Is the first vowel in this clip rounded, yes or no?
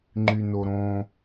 yes